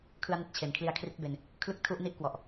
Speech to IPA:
kʰ ɯ˦˥ a̯ n i˨˩ t̚ t͡ɕʰ e˨˩ n kʰ l i˧ a̯ kʰ r i˦˥ t̚ b e˧ n | kʰ l ɯ˥˩ k̚ tʰ u˥˩ ʔ n i˥˩ ʔ k w ɔ˨˩ ʔ

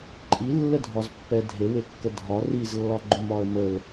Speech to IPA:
ǃʼ i lː ə dʱ ɒ z pː ɛ dʱ e w e kː ə dʱ ɒ r i z lː ɒ ɡ͡ǃ ʊ m ɒ ə̯ m ə l

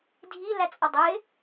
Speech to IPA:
dʱ i l æ t͡sʼ ʌ dˤ ɪː

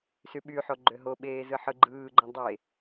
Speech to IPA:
s y ɓ y ħ o ɡ͡ǃ ø ɦ o ɓ eː z ɯ ħ ɯ ɡ͡ǃ ɯː ɡ͡ǃ õ dˤ e

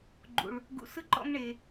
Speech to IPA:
ɡ͡ǃ ṵ˨ ɭ | ɡ ṵ˨ s ɯ˦ ǃ ɔ̰˧ ŋ ɳ e˨

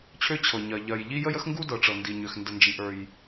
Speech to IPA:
t͡ɕʰ ø˥ t͡ɕʰ ɤ˩ ɲ ɜ˩ ʎ ɜ˩ j ʎ i˥ j ə˥ j ə˥ x ŋ ɡ u˥ d ɤ˩ ʈ͡ʂ ɤ˩ n d i˩ ɲ ø˩ x n d ə˩ n d͡ʒ i˩ ʔ ə˞˩ j

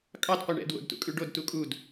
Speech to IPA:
kʼ ɑ d qʷ ɛ ɳ ɛ̰ d w o̰ d t ṵ kʼ ʉ ɖ o d t u kʼ u d

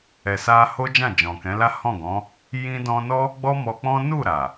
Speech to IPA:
ɛ˨ s a˧ h o˦ d͡ʒ ã˦˨ d͡ʒ ɔ̃˨ k ɛ̃˨˦ l a˦ h ɔ̃˦˨ ɡ ɔ̃˨˦ | j ĩ˧ d ɔ̃˧ n ɔ˦ | ɡ͡b ɔ˦ m ɔ˧ k͡p ɔ̃˦ n u˦˨ ɾ a˨

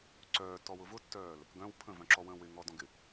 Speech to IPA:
ǀ œː tː ɔ w ʊ v ʊ tː œː l | ɡ œ̃ w pʰ ə̃ v œ̃ ǁ ɔ w ə̃ː w ɪ ŋ ɔ d ɔ̃ ɡ ɪ

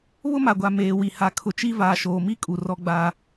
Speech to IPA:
β ʊ˦ m a˨ ɡʷ a˨ m eː˨ w i˨ h a˨ kʰ ʊ˨ t͡ʃ i˦ v aː˨ ʃ oː˨ m i˦ kʼ u˨ r ɔ˦ ɡ͡b aː˦

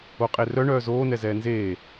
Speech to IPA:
o qʼ e r œ ɳ œː z oː n ɛ z ɛː n z eː

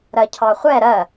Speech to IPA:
ɾ ɜ cʰ ɑ χʷ ɛ ɾ ɜ

